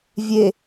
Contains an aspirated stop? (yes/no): no